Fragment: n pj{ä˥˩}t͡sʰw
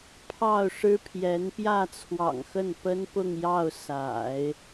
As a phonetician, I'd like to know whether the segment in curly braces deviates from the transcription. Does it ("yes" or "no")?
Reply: no